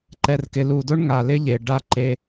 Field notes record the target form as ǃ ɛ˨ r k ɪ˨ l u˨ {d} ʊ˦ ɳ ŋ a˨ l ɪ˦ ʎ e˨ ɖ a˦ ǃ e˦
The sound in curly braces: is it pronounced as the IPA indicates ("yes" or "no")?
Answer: yes